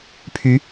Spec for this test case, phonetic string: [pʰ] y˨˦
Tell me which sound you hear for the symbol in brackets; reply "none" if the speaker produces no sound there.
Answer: pʰ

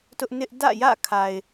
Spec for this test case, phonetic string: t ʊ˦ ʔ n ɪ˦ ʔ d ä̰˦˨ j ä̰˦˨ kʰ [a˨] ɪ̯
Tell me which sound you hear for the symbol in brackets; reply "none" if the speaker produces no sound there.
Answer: a˨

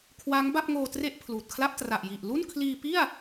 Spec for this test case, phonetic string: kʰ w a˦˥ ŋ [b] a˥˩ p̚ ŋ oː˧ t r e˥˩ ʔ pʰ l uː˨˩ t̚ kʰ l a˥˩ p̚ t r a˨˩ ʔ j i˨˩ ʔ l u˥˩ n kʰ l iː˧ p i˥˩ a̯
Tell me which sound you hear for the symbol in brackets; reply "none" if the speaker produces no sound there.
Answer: b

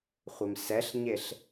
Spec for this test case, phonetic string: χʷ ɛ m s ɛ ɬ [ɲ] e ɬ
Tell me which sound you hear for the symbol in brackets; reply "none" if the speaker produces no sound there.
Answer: ɲ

